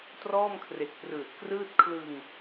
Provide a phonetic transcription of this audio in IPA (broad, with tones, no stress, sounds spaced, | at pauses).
t r ɔː˥˩ m kʰ r e˨˩ k̚ p r ɯː˨˩ t̚ k r ɯː˥˩ t̚ kʰ l ɯ˧ ŋ